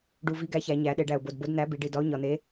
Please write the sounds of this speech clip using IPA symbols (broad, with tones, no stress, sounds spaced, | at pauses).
ɖ u˨˩ v i˨˥ ɡ æ˨˥ ç æ˩˧ ɲ æ˩˧ ɗ e˩˧ ɖ æ˨˩ ʊ̯ b o˨˩ d b o˨˥ d n̪ æ˨˥ b i˩˧ ɖ i˨˩ d ɒ˨˥ ʊ̯ ɲ ɒ˨˩ n̪ e˨˥